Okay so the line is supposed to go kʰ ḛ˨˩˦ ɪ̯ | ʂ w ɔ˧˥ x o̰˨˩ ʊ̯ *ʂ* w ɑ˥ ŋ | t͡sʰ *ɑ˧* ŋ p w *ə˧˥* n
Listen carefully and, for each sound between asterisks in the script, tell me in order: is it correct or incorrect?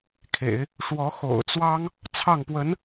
incorrect: t͡s, incorrect: ɑ˥˩, correct

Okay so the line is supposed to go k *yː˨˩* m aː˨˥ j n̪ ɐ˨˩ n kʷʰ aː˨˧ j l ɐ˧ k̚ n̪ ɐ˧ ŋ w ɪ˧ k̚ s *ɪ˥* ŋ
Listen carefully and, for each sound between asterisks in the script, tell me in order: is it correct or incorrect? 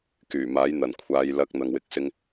correct, correct

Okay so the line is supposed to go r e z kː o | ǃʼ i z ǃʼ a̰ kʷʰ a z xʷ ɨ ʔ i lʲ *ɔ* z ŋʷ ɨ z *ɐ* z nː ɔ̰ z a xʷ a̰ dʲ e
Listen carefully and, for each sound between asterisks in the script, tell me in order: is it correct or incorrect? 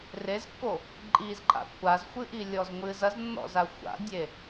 correct, correct

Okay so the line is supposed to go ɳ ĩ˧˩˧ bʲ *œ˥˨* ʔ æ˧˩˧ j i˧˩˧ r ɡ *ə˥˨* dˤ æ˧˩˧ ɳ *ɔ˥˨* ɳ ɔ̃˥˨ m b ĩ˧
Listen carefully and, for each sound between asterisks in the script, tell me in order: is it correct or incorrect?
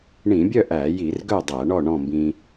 correct, incorrect: œ˥˨, correct

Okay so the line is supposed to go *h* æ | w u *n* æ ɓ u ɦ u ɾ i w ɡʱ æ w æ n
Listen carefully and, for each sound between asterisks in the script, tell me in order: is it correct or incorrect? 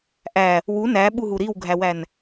incorrect: ʔ, correct

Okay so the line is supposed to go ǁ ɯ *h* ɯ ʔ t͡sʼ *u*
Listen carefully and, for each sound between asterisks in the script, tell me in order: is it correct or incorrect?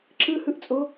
correct, incorrect: o

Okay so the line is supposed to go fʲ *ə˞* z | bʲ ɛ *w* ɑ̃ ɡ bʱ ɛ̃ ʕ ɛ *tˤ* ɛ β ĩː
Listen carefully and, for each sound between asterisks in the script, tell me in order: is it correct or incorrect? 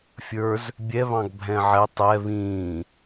correct, incorrect: β, correct

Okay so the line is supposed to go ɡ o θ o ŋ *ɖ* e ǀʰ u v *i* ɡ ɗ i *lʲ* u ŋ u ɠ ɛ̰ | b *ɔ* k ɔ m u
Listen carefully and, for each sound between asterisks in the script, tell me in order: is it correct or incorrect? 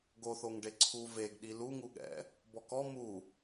correct, incorrect: e, incorrect: l, correct

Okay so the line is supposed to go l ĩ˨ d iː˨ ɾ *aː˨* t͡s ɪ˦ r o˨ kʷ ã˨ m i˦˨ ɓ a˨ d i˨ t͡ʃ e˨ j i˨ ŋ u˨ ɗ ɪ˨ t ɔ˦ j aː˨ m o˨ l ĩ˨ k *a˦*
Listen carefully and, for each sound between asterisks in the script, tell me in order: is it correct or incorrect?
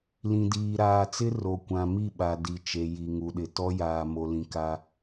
correct, correct

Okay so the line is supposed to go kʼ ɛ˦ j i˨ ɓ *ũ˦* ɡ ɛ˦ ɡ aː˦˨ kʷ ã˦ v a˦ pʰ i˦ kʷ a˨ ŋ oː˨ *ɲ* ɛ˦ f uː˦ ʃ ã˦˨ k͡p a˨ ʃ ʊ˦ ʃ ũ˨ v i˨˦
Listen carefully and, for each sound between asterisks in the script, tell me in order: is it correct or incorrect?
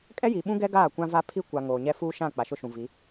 correct, correct

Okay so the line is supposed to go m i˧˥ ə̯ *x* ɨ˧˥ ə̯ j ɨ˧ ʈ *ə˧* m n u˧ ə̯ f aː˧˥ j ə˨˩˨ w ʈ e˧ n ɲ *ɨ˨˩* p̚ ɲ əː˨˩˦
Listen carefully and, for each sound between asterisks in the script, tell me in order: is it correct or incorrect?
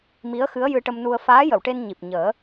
correct, correct, incorrect: i˨˩

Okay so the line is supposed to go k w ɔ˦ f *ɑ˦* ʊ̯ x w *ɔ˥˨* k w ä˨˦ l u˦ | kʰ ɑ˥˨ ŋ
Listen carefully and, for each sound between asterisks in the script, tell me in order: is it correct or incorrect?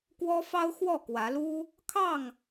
correct, correct

